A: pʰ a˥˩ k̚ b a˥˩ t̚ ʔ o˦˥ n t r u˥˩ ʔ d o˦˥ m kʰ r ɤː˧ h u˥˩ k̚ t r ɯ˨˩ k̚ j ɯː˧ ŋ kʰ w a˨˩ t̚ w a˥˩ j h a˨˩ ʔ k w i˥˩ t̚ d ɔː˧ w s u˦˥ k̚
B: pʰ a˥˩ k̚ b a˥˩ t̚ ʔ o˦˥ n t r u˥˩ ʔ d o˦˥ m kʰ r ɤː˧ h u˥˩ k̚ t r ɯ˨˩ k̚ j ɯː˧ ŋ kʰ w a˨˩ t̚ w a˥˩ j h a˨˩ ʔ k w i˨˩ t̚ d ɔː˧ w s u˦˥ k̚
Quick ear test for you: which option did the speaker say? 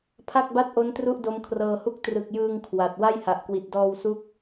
B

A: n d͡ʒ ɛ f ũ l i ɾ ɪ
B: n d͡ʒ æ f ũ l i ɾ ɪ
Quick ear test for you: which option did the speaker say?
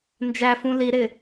B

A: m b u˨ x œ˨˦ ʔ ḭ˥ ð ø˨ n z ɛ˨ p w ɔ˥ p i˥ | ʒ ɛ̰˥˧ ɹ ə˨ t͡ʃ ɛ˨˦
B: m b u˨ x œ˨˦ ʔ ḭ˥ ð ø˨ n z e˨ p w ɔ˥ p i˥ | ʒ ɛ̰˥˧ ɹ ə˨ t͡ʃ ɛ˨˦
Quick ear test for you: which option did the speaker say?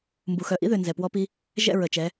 A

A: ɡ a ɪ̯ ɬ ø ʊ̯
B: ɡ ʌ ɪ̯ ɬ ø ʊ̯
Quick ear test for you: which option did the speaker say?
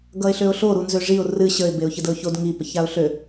B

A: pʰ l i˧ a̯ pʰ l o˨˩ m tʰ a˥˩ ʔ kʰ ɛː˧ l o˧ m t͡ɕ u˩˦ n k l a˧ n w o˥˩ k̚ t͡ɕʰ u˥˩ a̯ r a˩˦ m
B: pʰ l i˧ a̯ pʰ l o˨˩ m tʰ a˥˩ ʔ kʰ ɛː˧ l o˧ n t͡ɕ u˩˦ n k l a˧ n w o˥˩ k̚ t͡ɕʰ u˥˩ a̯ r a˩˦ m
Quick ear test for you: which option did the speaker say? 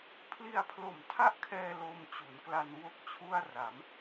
A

